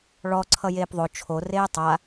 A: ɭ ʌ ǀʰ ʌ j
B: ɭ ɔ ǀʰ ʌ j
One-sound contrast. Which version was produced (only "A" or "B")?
B